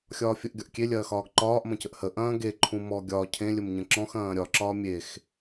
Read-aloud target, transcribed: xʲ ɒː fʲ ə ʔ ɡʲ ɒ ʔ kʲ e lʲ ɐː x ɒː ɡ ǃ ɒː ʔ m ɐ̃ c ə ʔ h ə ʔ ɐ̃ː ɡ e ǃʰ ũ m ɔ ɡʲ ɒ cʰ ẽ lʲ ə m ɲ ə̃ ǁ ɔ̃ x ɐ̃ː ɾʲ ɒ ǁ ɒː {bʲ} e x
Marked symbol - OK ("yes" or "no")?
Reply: no